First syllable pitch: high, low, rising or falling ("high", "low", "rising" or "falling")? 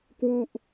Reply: falling